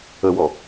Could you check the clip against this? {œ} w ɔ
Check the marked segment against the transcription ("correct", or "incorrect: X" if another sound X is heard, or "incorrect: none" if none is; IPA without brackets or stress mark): incorrect: ə